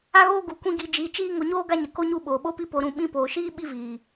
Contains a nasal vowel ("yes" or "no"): yes